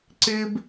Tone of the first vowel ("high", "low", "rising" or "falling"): high